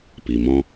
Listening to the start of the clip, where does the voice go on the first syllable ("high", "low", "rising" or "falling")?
low